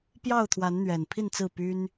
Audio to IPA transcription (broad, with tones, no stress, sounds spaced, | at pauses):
p j ɑ˥˨ ʊ̯ t̪ʰ w a˨˦ n n̪ ɥ ɛ˨˩ n pʰ i˥˨ n t͡s ɹ̩˥˨ p y˦ n